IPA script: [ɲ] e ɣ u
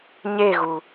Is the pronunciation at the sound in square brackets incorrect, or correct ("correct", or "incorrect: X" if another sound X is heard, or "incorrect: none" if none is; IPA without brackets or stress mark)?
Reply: correct